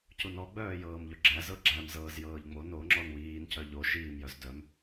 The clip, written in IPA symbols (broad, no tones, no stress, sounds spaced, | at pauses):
c u n ɔ ɡ͡b œː j ɤː m ʎ ɵ ɡ͡ǁ æ z ɤ ɡ͡ǁ æ m z ɤː z j ɤː ʎ ŋ͡m o n o ŋ͡ǁ ɔ n w iː n c œ ʎ o ʃ iː m j œ z d œ m